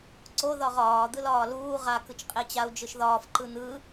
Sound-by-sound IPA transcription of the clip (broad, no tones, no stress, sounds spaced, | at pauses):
ǀ o ð ɒ ʁ ɒː d̪ ɯ l ɒː l uː ʁ a k ɯ t͡ʃ qʼ e t͡ɕ a u̯ d͡ʒ ɯ ʃ ð ɒː f ǃ ɯ n̪ ɯ